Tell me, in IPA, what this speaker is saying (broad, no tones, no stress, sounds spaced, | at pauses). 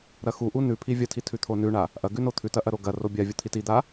ɾ ɐ x u ʔ u n ʉ pʰ i vʲ ɐ tʰ i tʰ ʉ t̪ʰ o n ʉ ɳ a | ʔ ɐ ɡ ʉ n o t̪ʰ ʉ t ɐ ʔ ɐ ɾ o ɡ ɐ r o bʲ a vʲ u t̪ʰ i t i d̪ a